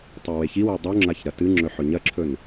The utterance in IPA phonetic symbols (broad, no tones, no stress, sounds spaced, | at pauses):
tˤ i w e ç i w e dˤ u ŋ͡ǁ a ç ɾ ɐ t ɨ ŋ͡ǁ ɵ ħ ɵ ɲ ɐ ǁʰ ɵ n